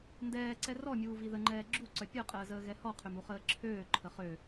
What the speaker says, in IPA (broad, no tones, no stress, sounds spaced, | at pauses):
n d ɛː ǀ ɛ r ɔ mʲ uː v i ð ə ŋ͡ǃ ɛː ɡ͡ǁ u ǀ œ pʲ œ qʼ əː z əː ɣ ɛ h ɔ qʰ ø m u χ əː ǁʰ øː ǃʰ ə χ ø